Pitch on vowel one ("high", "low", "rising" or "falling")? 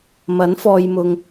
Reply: rising